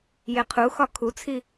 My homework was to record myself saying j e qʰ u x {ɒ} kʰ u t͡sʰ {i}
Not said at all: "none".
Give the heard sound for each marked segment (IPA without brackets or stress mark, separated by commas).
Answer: ɒ, i